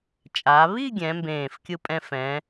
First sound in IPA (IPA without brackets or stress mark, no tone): t͡ʃʼ